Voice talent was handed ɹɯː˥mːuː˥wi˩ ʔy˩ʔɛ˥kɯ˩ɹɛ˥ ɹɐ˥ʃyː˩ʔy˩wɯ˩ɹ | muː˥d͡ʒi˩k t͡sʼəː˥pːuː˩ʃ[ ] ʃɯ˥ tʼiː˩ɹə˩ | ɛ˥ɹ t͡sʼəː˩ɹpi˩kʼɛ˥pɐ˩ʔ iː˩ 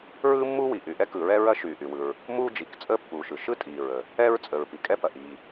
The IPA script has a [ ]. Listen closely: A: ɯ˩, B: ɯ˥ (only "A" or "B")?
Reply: A